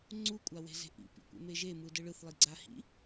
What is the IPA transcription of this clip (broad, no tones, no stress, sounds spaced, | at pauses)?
ŋ͡ǀ u kʷʼ a w e̤ z e̤ ʔ ḭ p ḭ kʷ ḛ m e ʒ e m ɯ d ɯ ɭ ɯ θ lˠ i ɡ͡ǀ a h ḭ